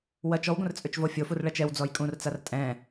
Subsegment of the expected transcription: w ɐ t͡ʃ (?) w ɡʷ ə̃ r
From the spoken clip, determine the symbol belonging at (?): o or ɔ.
ɔ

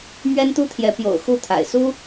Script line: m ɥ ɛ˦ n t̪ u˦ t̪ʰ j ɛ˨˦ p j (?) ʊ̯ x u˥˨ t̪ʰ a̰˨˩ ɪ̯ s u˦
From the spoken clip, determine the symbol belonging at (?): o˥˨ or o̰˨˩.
o̰˨˩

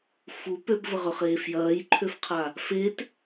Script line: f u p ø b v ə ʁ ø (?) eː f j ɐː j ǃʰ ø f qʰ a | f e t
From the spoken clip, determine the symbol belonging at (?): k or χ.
χ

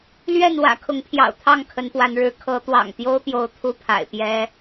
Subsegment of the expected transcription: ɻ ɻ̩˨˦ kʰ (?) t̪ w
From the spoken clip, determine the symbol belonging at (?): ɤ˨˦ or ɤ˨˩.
ɤ˨˦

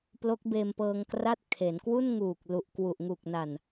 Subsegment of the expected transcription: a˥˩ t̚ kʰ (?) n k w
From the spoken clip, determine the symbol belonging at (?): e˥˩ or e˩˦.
e˩˦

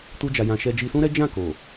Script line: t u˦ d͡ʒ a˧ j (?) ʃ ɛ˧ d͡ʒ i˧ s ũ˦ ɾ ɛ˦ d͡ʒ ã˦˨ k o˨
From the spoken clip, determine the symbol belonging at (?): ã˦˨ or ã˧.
ã˧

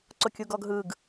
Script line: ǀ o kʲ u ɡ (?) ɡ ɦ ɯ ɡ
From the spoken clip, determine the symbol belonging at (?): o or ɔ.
ɔ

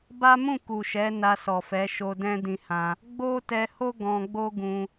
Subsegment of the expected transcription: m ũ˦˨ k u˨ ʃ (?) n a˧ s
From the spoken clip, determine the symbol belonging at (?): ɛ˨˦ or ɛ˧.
ɛ˨˦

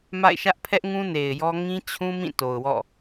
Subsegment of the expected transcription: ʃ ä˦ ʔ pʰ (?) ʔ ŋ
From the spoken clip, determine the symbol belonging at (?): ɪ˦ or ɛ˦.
ɛ˦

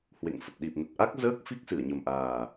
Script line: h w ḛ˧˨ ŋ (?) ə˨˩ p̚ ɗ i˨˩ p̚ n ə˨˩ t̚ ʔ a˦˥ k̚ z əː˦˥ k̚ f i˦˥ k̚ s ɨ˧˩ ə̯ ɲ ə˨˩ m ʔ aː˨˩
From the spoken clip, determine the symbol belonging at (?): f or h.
f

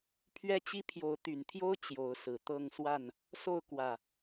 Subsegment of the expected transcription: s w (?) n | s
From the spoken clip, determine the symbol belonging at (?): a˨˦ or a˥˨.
a˥˨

